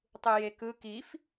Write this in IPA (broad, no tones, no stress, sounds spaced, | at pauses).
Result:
tˤ ɯ j e k ɯ k i f